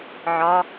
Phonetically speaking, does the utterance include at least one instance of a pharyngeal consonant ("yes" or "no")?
yes